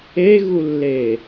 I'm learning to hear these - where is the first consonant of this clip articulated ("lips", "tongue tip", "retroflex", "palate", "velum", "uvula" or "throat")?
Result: velum